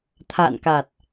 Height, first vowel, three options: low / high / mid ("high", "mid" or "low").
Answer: low